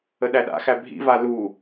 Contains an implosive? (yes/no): yes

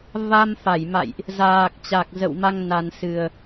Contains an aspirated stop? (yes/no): no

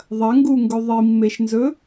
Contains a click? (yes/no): no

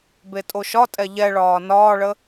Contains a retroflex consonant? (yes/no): yes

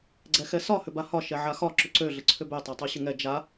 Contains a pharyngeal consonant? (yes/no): yes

